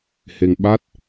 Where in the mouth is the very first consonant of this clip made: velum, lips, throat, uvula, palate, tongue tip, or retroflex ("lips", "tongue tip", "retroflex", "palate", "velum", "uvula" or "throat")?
throat